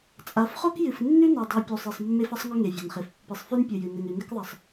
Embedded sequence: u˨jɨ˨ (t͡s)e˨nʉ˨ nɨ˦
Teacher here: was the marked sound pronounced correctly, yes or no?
no